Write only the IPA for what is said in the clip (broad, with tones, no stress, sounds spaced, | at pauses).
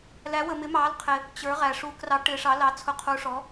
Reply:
l æ˧˥ w ə˧ m ɪ˧˥ m ɑː˧˥ l qʰ ɪ˧ | t͡ɕ ə˞˧˥ ʁ æ˧ ʂ uː˧ k r ɑ˧˥ ʈ ɪː˧˥ ʂ ɑ˧˥ l ɑ˧˥ t͡sʰ ʊ˧˥ qʰ u˧˥ ʂ ɔ˧˥